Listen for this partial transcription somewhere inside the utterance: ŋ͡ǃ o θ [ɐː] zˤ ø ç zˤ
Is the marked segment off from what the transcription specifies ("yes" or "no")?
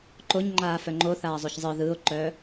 yes